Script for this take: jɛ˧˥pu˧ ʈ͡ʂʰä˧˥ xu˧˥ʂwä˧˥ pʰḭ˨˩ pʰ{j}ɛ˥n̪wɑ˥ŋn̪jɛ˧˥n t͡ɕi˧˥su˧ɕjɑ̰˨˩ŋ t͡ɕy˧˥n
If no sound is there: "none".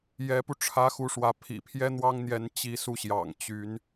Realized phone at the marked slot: j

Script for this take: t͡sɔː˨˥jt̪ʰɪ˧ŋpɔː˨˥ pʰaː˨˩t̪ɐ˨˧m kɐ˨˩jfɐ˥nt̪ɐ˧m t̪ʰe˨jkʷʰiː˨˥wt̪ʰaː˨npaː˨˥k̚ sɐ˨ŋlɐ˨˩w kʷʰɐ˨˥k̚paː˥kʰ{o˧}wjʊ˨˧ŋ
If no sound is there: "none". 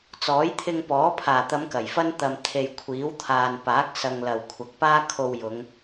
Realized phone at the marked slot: o˧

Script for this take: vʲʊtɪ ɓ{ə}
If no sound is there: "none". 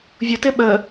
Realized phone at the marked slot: ə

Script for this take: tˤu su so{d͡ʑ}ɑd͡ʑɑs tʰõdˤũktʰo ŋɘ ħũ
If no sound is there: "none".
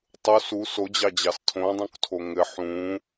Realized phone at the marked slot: d͡ʑ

